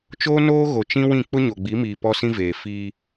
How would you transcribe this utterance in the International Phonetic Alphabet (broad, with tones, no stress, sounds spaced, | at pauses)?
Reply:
t͡ʃ oː˦ n oː˦ ɣ o˨ t͡ʃ ĩ˦ w ĩ˦˨ k͡p ʊ˦ ɲ o˨ ɡ͡b i˨˦ m iː˨ p ɔ˦ s ĩ˦ v eː˨ f iː˦